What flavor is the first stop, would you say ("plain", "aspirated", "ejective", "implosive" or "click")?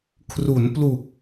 aspirated